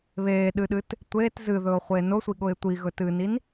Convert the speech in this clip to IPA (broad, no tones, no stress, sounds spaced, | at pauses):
β eː ɗ ɨ ɗ ɨ t | tʷ eː t z ɨ ð ɵː ʊ̯ χʷ eː n ʊ sʷ i ɠ ʊ ɪ̯ tʷ i ɣ ɵ t ɨː n i n